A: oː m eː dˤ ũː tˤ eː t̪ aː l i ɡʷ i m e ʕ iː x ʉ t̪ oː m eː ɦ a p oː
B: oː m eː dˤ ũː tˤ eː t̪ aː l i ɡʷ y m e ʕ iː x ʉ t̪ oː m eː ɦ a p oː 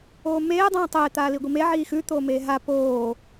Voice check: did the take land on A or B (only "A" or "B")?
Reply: A